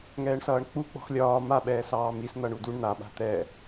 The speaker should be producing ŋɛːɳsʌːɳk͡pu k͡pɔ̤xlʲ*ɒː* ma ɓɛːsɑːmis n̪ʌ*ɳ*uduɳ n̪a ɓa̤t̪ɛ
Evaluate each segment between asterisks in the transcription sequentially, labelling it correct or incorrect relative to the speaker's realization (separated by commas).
correct, correct